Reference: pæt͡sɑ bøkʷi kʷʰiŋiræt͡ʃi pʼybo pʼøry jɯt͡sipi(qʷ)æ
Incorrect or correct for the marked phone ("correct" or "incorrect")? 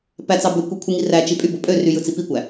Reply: incorrect